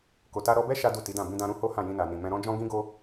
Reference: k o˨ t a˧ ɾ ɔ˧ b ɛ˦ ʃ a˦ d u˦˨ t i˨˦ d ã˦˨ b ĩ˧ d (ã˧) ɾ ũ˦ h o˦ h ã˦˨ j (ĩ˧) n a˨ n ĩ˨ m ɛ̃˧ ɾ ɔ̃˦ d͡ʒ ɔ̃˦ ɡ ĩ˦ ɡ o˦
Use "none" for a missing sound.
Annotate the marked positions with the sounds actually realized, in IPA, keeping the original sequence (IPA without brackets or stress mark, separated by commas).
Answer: ã˧, ĩ˧